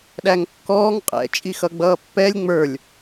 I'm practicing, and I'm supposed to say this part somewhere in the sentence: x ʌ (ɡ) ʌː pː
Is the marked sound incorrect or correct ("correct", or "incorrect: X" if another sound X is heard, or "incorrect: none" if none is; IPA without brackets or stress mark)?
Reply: incorrect: ɡ͡b